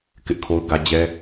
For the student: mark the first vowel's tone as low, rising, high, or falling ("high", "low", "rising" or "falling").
high